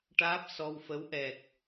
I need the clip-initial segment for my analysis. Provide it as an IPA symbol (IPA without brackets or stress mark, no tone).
ʈ